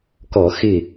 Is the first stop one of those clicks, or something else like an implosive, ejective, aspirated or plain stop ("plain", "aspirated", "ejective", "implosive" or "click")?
plain